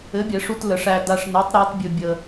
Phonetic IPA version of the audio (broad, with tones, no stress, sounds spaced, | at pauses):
ɘ˨˥ bʲ ɛ˨˩˦ ʂ u˧ t l ə˨˩˦ ʂ æ˧ d a˧ ʂ n e˨˥ tˤ ɾ a˨˥ t bʲ ɵ˧ bʲ ə˧